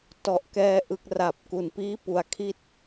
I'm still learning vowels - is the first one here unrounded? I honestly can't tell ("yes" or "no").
no